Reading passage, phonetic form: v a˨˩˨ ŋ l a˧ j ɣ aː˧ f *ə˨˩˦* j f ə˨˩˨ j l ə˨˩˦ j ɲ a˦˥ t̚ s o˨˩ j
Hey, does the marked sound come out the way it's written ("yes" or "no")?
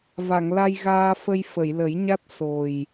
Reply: no